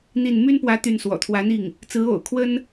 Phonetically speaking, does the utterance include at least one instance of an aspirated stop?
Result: yes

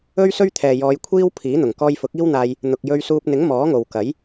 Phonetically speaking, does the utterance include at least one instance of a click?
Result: no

